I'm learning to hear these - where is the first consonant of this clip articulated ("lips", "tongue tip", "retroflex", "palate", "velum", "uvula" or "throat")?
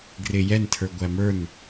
velum